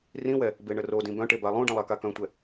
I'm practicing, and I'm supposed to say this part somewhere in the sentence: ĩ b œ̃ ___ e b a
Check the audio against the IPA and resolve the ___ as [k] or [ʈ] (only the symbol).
ʈ